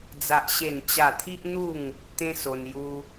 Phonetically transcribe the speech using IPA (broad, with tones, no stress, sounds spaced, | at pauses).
d͡z a˦ ʔ ɕ e˥˧ n t͡ɕ a˥˧ t̪ʰ i˦ ʔ n̪ u˥˧ ŋ | t̪ ẽ˦ s o˧ n j u˦